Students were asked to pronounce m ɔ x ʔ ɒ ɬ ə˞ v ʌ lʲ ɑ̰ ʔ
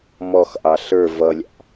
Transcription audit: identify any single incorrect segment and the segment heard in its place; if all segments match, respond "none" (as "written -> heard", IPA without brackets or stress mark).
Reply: ɒ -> ɑ